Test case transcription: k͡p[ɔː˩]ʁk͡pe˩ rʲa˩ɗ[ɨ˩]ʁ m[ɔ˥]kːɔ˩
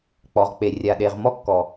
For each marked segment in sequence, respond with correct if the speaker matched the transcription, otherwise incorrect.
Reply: incorrect: ɔ˩, incorrect: e˩, correct

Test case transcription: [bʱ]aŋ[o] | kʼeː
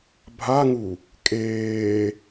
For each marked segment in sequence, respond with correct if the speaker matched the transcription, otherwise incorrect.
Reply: correct, incorrect: u

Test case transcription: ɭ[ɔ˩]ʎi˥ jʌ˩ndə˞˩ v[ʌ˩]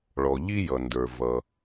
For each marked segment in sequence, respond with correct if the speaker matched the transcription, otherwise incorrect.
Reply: correct, correct

